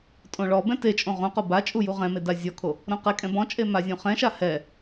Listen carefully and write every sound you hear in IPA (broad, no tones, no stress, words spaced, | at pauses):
tʼõɭɔbɛ̃ tet͡ʃʼõ ʁõqo bat͡ʃʼu juʁɛ̃me dazʲɔkʰo | ɾõqɛkʼɛ̃ bɔ̃t͡ʃʼe mazʲõχɛ̃ʃa hɛ